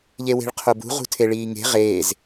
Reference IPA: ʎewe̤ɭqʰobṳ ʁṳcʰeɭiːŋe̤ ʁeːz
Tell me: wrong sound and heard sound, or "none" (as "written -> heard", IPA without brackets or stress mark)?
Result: cʰ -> tʰ